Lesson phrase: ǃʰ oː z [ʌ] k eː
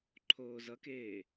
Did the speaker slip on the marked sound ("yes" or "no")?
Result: no